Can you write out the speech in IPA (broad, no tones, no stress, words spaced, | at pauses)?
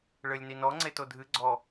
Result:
ɭɘlʲninɔ ŋ͡ǀetodʱɨ ɡ͡ǀɔ